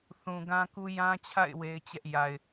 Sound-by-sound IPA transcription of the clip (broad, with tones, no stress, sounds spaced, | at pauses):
θ ũ˨ ɡ ã˦ k u˦ j ã˦ t͡ɕʰ a̰˦˨ ɪ̯ w e˦ ɪ̯ t͡ɕ ɛ˦ ʔ j a˨ ɪ̯